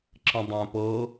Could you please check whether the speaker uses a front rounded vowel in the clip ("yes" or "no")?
yes